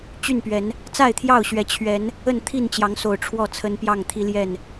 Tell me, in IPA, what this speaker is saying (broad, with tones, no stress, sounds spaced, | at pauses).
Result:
t͡ɕ y˥˨ n p ɥ ɛ˨˦ n | t͡s a˥˨ ɪ̯ t̪ʰ j ɑ˥˨ ʊ̯ ɕ ɥ ɛ˨˦ t͡ɕʰ ɥ ɛ˨˦ n | ə˥˨ n t̪ʰ i˥˨ n t͡ɕ j ɑ˨˦ ŋ s o˨˩ ʊ̯ ʈ͡ʂʰ w ɔ˥˨ t͡sʰ ə˦ n p j ɑ˥˨ ŋ t̪ʰ i˦ l j ɛ˥˨ n